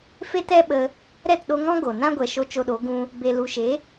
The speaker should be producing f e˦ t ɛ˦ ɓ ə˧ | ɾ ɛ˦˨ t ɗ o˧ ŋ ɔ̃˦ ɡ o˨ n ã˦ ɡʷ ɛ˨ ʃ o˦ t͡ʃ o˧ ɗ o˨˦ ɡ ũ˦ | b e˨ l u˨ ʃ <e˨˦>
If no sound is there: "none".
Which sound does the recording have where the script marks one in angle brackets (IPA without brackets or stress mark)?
e˨˦